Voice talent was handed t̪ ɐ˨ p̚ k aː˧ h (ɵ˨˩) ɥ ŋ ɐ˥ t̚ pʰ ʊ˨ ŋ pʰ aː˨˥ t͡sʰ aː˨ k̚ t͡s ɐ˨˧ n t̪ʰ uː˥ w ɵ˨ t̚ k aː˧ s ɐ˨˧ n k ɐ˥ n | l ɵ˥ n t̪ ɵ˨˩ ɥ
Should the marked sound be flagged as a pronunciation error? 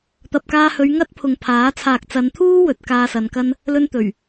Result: yes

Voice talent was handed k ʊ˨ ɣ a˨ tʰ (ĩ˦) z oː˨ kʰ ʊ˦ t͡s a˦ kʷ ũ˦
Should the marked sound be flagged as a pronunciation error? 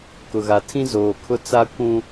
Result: no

